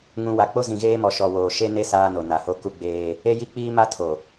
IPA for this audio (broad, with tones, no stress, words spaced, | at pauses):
ŋũ˨ wa˨k͡po˦ zĩ˨ɣeː˦mɔ˨ ʃɔ˨woː˨ʃe˦ne˦ saː˦no˨ na˨ho˦ ku˦ ɡ͡beː˦ | e˦ji˦k͡piː˦ ma˦tʰo˨